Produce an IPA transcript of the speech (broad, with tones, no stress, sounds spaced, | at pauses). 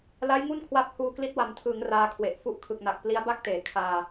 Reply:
l a˦˥ j ŋ u˥˩ n kʰ w a˦˥ p̚ h uː˧ k l i˦˥ t̚ w a˨˩ m tʰ ɯː˩˦ ŋ r aː˦˥ kʰ w e˨˩ ʔ f u˥˩ ʔ kʰ ɯ˨˩ k̚ n a˨˩ k̚ p l i˦˥ a̯ b a˥˩ k̚ t eː˩˦ kʰ aː˧